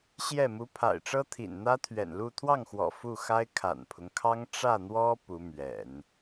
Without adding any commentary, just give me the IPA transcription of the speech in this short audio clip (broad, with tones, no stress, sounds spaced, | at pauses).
ɕ j ɛ˥˩ m u˧˥ pʰ a̰˨˩ ɪ̯ ʈ͡ʂ ɤ˥ t̪ʰ ḭ˨˩ n n̪ ä˥ t̪ʰ ɥ ɛ̰˨˩ n l u˥˧ t̪ʰ w ɑ˥˩ ŋ x w ɔ̰˨˩ f u˥˩ x a˥ ɪ̯ kʰ a̰˨˩ n pʰ ʊ˦ ŋ kʰ ɑ˥ ŋ ʈ͡ʂ ä˥˩ n̪ w ɔ˥ p u˧˥ m ɥ ɛ̰˨˩˦ n